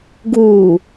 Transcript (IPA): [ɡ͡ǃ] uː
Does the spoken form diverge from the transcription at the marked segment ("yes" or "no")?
yes